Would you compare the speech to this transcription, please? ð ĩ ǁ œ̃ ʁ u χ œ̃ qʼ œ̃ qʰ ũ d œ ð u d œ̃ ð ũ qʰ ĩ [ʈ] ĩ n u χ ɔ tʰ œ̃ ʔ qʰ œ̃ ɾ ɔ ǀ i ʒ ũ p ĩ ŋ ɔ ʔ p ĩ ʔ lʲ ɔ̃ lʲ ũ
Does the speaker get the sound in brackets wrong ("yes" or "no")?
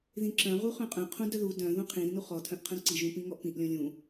yes